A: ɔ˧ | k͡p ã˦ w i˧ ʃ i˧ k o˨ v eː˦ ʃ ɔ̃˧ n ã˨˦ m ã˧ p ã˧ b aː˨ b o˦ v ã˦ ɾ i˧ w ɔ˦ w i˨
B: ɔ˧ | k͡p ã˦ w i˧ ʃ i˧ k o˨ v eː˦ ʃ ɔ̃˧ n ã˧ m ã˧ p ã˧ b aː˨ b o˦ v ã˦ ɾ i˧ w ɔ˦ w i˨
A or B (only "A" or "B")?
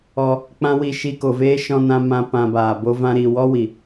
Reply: B